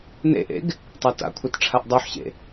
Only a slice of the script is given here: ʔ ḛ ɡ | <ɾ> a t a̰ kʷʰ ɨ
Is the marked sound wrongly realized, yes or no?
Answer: yes